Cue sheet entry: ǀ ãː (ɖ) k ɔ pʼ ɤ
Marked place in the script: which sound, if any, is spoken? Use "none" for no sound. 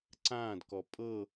d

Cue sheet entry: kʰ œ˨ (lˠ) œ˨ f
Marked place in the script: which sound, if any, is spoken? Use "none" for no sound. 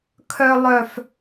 lˠ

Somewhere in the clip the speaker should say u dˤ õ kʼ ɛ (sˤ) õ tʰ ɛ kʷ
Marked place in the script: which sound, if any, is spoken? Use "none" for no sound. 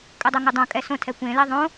s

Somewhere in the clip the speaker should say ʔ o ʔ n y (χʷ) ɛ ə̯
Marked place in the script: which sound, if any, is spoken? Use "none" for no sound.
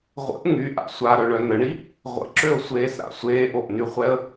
χʷ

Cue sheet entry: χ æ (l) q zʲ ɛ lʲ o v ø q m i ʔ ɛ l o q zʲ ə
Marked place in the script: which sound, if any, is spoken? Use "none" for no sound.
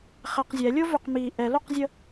none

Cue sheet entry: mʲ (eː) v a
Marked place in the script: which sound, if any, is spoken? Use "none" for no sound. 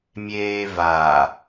eː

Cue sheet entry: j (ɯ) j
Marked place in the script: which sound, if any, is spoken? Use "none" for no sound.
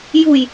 u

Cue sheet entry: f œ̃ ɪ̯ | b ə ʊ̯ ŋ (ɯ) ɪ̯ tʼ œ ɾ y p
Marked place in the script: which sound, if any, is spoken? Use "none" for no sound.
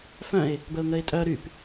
ə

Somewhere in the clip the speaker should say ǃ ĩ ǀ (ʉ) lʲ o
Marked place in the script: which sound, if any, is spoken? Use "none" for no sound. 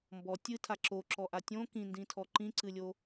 ɨ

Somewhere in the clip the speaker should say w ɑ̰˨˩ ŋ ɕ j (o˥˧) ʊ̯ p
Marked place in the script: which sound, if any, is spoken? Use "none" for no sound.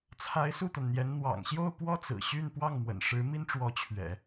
o˥˧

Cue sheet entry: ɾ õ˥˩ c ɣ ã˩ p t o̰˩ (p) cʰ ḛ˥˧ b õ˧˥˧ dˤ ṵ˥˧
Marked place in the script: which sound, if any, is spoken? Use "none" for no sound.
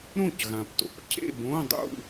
p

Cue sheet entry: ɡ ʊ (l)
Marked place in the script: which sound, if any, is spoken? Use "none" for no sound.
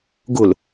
l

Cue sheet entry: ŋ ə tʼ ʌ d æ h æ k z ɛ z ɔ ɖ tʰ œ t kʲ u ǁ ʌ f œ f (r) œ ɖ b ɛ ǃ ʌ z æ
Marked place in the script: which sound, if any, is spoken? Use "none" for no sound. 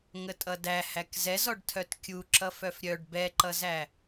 ɾʲ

